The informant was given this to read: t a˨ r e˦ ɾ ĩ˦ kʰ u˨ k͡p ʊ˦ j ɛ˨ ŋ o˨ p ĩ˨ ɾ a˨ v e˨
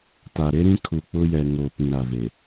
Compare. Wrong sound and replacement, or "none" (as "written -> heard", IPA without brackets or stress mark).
r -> ɾ